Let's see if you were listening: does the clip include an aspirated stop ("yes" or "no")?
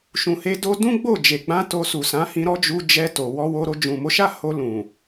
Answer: no